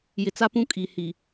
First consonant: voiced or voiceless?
voiced